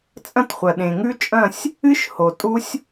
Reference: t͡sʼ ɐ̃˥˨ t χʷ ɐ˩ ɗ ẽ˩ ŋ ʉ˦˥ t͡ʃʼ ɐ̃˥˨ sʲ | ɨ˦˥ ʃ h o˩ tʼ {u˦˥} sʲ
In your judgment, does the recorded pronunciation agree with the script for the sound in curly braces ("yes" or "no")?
yes